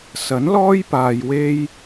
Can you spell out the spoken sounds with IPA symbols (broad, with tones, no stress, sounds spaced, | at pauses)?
s ɐ˨˥ n l ɔː˥ j p aː˨ j w e˥ j